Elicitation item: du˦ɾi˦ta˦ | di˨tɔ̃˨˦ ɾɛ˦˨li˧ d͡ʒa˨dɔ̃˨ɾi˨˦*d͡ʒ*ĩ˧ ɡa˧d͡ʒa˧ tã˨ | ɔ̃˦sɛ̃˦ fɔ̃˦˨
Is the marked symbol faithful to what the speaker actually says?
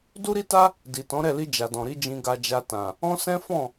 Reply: yes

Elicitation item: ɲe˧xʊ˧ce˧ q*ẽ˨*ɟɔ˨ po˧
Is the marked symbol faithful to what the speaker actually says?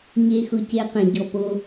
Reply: yes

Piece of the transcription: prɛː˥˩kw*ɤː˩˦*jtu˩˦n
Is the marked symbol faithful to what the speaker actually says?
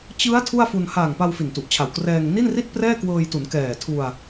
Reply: no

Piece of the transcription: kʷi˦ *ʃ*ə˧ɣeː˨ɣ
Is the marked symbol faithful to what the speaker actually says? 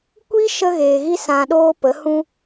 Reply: yes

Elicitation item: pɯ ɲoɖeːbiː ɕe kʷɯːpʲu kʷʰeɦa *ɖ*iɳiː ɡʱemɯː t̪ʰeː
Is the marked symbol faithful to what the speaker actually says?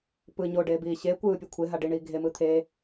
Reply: yes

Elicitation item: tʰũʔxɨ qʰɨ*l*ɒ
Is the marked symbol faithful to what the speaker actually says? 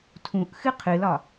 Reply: yes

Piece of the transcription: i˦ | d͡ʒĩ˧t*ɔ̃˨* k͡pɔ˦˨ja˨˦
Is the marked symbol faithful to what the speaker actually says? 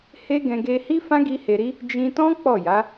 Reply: no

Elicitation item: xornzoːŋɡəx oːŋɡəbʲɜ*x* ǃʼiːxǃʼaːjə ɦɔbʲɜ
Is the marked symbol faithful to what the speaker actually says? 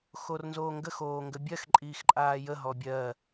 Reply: yes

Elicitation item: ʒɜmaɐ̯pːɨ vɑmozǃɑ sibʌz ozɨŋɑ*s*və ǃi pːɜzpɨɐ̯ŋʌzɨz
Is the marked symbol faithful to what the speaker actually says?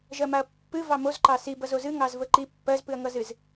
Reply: no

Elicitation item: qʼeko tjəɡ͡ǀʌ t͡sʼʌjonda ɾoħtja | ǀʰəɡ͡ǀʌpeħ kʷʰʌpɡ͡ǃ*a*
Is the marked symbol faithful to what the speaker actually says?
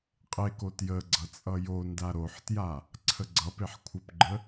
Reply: no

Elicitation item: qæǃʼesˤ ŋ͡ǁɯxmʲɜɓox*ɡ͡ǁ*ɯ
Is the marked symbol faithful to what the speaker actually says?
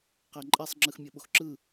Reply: no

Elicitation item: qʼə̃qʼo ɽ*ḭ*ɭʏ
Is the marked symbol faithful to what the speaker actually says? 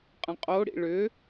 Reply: yes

